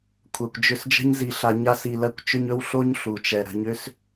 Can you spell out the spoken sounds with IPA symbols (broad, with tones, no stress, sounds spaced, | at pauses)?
kʷʰ ɜ˨ kʷ d͡ʒ ʏ˧ s d͡ʒ ə̤˦ ɲ z i˧ ɬ a˧ ɲ a˦ s i˨ l ɜ˧ kʷ t͡ʃ ʏ˧ ɲ ɵ˦ w ɬ o˦ ɲ ɬ u˨ t͡ʃ ɛ˨ ɾ ə̤˧ ɲ ʏ˦ s